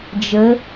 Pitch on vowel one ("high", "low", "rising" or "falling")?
rising